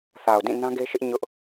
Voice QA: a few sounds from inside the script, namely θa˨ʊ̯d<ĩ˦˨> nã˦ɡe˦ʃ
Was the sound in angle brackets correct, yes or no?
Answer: yes